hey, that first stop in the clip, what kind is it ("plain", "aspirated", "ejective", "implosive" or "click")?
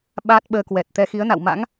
implosive